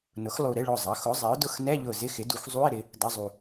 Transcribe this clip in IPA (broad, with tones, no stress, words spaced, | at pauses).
nʊ˩˥xlˠu˧˩ ɾɪ˧˥˧ɭʊ˧˩zˤʌ˩˥ xʊ˩˥zˤɪ˩˥ʊ̯ dʊ˧˩xnɛ˧˥˧ʎʊ˧˩ zɪ˧˥˧xɪ˩˥du˩˥x zˤu˧˥˧ɪ̯ ɾɪ˩˥ | dʌ˧˥˧zˤu˧˩